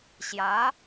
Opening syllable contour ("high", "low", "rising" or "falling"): rising